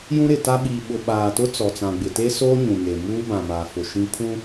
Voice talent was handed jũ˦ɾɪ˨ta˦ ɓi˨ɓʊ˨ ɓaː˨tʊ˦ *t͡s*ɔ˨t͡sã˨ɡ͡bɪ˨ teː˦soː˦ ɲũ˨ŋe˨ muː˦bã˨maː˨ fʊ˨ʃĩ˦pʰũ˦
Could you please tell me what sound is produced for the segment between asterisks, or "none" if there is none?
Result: t͡s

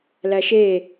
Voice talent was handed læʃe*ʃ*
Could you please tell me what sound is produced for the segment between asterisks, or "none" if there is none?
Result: none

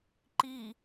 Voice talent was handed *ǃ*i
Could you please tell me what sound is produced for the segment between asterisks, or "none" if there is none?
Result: ǃ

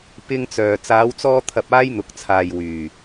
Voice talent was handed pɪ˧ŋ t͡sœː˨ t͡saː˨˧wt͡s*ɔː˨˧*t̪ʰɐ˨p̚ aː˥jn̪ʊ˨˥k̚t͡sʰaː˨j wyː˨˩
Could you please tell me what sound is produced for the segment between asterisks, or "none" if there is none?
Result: ɔː˧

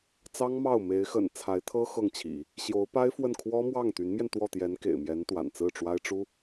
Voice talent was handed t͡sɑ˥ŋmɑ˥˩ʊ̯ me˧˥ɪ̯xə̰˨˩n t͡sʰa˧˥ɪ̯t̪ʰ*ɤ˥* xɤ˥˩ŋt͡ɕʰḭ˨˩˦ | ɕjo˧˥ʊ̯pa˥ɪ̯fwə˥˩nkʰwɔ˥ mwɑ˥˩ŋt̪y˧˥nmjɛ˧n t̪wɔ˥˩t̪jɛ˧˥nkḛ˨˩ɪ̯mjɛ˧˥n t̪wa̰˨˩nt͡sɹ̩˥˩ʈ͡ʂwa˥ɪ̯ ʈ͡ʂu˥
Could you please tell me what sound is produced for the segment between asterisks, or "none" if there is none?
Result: ɤ˥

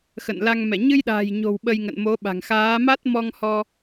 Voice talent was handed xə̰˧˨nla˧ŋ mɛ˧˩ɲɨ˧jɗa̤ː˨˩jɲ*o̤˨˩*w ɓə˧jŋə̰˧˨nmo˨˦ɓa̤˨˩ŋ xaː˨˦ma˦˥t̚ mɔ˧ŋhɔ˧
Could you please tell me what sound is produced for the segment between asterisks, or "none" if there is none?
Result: o̤˨˩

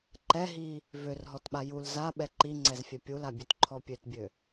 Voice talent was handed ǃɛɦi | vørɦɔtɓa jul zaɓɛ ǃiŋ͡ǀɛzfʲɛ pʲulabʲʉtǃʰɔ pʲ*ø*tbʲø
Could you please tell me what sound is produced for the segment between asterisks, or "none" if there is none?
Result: ø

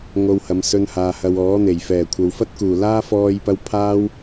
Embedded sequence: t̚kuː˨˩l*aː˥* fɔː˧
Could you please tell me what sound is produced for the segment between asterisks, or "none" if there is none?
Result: aː˥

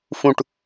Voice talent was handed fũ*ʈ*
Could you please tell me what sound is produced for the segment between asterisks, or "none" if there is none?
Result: ʈ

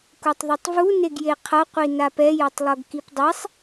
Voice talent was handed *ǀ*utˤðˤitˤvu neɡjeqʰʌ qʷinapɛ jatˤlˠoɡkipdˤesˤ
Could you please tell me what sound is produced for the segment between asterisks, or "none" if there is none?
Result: k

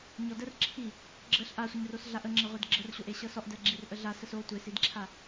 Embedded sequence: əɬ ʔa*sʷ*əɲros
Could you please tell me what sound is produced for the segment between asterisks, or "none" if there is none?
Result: sʷ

